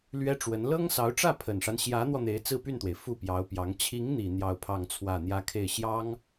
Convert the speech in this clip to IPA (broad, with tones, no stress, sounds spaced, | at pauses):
l ɥ ɛ˥ ʈ͡ʂ w ə˧˥ n l ɤ˥ ŋ s ɑ˧˥ ʊ̯ ʈ͡ʂ ä˥˩ pʰ ə˨˩ n ʂ a˦ n ɕ j ä˧˥ n̪ w ɔ˧ n̪ e˧˥ ɪ̯ t͡s ɹ̩˥˧ p y˥˩ n t̪ w e˩ ɪ̯ f u˥˩ p j ɑ˧˥ ʊ̯ p j ɑ˧˥ ŋ t͡ɕʰ i˧˥ ŋ n̪ i˨˩ n̪ j ɑ˥˧ ʊ̯ pʰ ɑ˥˧ ŋ t͡sʰ w ä˥˩ n̪ j ä˥ kʰ e˥˩ ɪ̯ ɕ j ɑ˥ ŋ